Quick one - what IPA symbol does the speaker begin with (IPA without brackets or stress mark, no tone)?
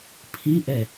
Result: pʰ